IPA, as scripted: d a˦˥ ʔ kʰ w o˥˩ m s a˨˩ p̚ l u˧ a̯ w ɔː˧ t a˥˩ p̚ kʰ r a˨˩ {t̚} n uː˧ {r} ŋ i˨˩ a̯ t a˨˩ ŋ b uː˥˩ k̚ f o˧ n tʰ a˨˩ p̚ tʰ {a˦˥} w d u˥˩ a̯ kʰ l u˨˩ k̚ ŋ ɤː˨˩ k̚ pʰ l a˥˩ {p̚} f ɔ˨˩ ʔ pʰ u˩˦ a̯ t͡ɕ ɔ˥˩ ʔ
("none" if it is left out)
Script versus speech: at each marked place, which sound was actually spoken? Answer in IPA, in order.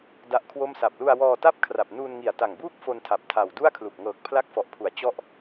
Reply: p̚, n, a˨˩, k̚

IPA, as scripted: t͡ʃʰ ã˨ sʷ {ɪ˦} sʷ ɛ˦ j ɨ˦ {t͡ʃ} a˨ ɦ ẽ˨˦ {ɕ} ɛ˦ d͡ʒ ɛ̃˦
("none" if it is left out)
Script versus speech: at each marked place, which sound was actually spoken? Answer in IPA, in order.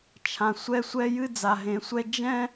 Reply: ɛ˦, d͡z, sʷ

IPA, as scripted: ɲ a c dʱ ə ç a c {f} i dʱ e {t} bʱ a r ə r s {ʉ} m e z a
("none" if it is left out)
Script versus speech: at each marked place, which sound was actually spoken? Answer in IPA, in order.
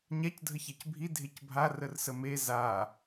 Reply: bʱ, c, ə

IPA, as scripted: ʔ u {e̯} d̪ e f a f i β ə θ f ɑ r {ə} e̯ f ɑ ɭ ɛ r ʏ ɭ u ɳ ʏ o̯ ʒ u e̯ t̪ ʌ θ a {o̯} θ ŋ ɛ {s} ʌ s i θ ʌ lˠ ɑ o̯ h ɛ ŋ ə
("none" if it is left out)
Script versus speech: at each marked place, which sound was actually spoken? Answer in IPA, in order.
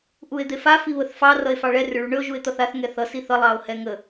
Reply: e̯, ʌ, none, θ

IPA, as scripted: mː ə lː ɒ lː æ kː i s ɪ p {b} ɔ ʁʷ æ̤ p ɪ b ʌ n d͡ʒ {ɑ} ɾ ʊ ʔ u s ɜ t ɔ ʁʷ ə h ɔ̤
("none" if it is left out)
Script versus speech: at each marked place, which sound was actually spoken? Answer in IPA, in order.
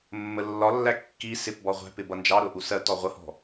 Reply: b, ɑ

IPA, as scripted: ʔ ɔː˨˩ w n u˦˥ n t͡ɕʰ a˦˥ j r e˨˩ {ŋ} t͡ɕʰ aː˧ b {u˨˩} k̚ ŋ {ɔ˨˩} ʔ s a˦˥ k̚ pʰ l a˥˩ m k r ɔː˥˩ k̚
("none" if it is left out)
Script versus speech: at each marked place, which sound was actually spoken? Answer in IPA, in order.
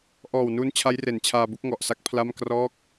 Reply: n, u˥˩, ɔ˨˩

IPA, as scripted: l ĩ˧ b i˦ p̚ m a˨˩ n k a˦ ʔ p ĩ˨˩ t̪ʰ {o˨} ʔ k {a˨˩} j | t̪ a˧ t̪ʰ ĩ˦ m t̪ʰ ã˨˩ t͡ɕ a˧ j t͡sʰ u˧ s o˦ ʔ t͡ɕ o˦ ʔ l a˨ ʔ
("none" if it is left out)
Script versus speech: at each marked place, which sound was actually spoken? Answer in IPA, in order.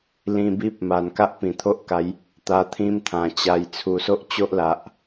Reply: o˦, a˨˦

